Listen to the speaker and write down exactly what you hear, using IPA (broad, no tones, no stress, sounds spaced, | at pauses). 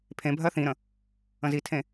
pʰ ẽ bʱ ɜ θ ĩ ɾ ə̃ | ə̃ z i tʰ ẽ